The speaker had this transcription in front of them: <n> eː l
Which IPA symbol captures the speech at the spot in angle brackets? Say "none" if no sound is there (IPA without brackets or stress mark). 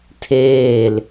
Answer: tʰ